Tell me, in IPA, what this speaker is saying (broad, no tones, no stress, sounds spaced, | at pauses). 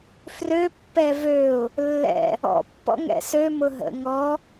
f r ø pː ɛ v ø ʊ̯ | lː ɛ̰ | ɔ̰ pː ɔ̰ ŋ ɛ̰ s ø m ʊ ɦ ə̰ ŋ ɔ